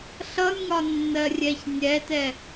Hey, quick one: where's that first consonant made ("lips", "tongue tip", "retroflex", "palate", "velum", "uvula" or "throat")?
tongue tip